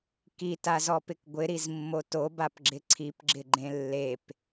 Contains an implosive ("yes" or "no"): no